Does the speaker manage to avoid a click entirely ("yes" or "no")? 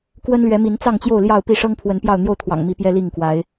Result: yes